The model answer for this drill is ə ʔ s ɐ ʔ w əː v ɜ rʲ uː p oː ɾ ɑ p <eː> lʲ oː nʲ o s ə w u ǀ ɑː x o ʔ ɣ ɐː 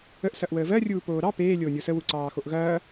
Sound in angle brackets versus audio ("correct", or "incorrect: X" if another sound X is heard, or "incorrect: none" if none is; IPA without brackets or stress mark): correct